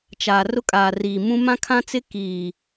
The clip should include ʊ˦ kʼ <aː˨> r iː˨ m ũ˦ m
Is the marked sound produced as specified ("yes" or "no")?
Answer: yes